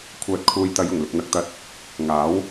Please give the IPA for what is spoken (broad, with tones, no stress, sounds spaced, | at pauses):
kʷʰ œː˨ t̚ kʰ uː˨ j t̪ ɐ˨˧ j ʊ˨˩ ŋ l ɪ˨ k̚ n̪ ɐ˧ k̚ t̪ ɐ˧ t̚ | ŋ aː˨˥ w